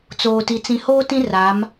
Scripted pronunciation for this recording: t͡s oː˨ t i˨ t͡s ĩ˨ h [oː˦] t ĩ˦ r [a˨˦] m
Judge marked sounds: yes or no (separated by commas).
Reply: yes, yes